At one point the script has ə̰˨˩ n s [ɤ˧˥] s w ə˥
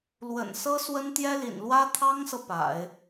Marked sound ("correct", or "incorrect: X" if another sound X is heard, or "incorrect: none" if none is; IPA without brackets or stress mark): incorrect: ɤ˥